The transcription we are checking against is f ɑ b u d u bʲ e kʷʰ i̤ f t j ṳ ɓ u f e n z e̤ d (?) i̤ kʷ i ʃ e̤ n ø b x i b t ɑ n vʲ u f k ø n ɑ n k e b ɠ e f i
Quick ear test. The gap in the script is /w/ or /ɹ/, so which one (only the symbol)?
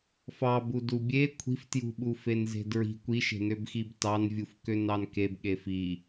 ɹ